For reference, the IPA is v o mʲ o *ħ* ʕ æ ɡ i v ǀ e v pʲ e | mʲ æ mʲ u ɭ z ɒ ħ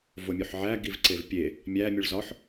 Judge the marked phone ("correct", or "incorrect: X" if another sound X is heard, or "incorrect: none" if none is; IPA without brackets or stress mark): correct